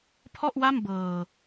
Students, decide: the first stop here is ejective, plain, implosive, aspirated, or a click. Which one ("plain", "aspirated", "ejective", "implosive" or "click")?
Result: aspirated